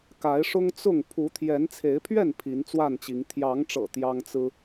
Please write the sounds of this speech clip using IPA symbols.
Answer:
k a˨˦ ɪ̯ ʂ ʊ˦ ŋ t͡s ʊ˥˨ ŋ pʰ u˨˦ t̪ʰ j ɛ˨˦ n t͡sʰ e˨˦ ɪ̯ pʰ ɥ ɛ˥˨ n pʰ i˨˦ n t͡s w a˥˨ n t͡ɕ i˨˦ ŋ t̪ʰ j ɑ˨˦ ŋ ʈ͡ʂ ɤ̰˨˩ t̪ j ɑ˦ ŋ t͡s ɹ̩˦

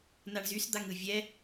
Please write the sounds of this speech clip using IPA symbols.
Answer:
n a ɳ z y s d̪ a ŋ ɯ vʲ ɛ

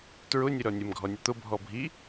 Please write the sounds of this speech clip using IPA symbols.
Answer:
t ɹ ʊ nʲ ʊ ɾ ɔ nʲ ə m ɡʱ ɔ nʲ ʊ t̪ ʊ bʱ ɔ bʱ i

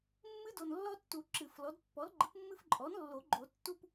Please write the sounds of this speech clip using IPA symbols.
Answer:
mː ɨ˦ d o˨ n lː ɔ˦ tː u˨˩˦ ǁ ɨ˨˩˦ f l ɔ˩˥ d pː ɔ˩˥ l ɡ͡ǃ ɨ˩˥ p mː ɨ˦ f ǃʼ ɔ˩˥ n lː o˨˩˦ ɡ͡ǃ o˨˩˦ tː u˦ p

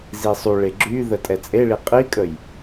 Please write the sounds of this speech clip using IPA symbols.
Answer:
z i sˤ u ɭ e ɡ͡ǁ y ð ə tʼ ɛ t͡sʼ e ɭ i qʼ i kʼ ə j

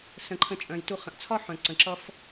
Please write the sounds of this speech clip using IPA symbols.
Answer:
s ə̃˩ ǃʰ ə̃˨ t͡ʃʼ œ̃˩ j t u˨ χ ə̃˩ ʔ t͡sʰ ɒ˥ ħ œ̃˩ ǀ ə̃˩ ǁ ʌ˦ f

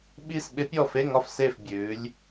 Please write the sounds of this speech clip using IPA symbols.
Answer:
ɓ i˦˨ s ɓ ɪ˧˥ pʲ ɔ˦˨ f e˧˥˧ ŋ ɒ˦˨ f s e˦˨ f bʲ ʉː˩˧ lʲ

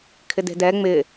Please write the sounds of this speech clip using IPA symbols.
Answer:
kʰ ɪ d e̤ d ɛ ŋ͡m ɪ

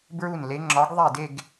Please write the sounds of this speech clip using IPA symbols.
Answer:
b ɹ u˥˩ n l e˨˥ ŋ͡ǁ ɒ˨˥ ɡ ðˤ i˥˩ d e˥˧ ɡ

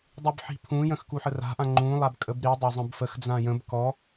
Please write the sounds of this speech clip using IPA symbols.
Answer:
dˤ ʉ b ħ i̤ pʰ ũ j ə̃ x k u ħ ə r a̤ ʔ ã ŋ͡ǃ ũ lˠ a b kʼ ə b ɾ i dˤ a zˤ ə̃ b f ə x d͡z ã j ə̃ b k ɔ

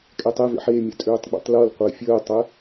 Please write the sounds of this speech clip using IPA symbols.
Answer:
kʼ ɛ tˤ e v ḛ ħ e mʲ ɯ tʼ øː tˤ ɡ͡b ḛ tˤ l ɤ l qʷ əː fʲ əː tˤ ə

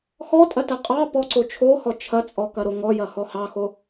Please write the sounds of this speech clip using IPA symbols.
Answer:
x ɔ tʼ ɐ t ɐ qʼ ɑ p ɔ ǀ o t͡ʃʰ o h ɔ t͡ʃʰ ɐ t͡sʼ ɔ k ɐ ɾ o ŋ ɔ j ɐ h ɔ h ɑ x o

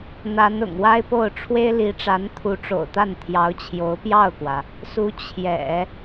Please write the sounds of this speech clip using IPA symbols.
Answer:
n̪ a˧˥ n ʊ̰˨˩ ŋ w a˥ ɪ̯ p o˥˩ ʊ̯ ʈ͡ʂʰ w e˥ ɪ̯ l i˧˥ ʈ͡ʂ a˧˥ n t̪ʰ u˧˥ ʈ͡ʂ o̰˨˩ ʊ̯ t̪ a˥˩ n t̪ʰ j ɑ˧˥ ʊ̯ t͡ɕʰ j o˧˥ ʊ̯ p j ɑ˥˩ ʊ̯ k w ä˩ | s u˧˥ t͡ɕʰ j ɛ̰˨˩˦

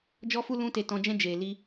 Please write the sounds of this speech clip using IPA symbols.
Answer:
d͡ʒ ɔ˦ f u˦ l ũ˦ t e˧ t ɔ̃˧ d͡ʒ ɛ̃˦ d͡ʒ eː˨ l i˧

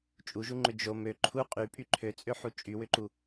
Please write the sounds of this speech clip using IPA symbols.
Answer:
t͡ʃʼ u ʒ u ŋ͡ǃ ʏ d͡ʒ o m ø ǃʰ u qʼ y pʼ y ǃʰ ø t͡sʼ ø ħ u t͡ʃʼ y w ʏ ǃ u

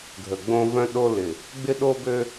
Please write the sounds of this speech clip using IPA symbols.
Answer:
ɡʱ ə˨ ɡ͡b õ˦ v œ̃˦ ɗ o˦ l ɪ˨ | ɡ͡b ɪ˦ ɗ o˦ b ø˦

